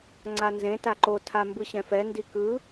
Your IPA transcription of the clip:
ŋ͡ǀ a n z ẽ t a ǃ o tʰ a m b ɯ ɕ ɛ̃ f ɛ n d i k ɯ

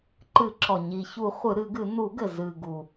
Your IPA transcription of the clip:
ǃ ɨ˨˩˦ ǁ ɔ˩ ɲ i˩ ç u˨˩˦ χʷ ɨ˨˩˦ ɾ ɨ˨˩˦ ɡ ɨ˨˩˦ n u˨˩˦ ɡ ɘ˩ z ɨ˩ ɡ u˩

